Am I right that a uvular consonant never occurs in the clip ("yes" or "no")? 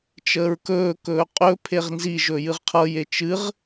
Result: no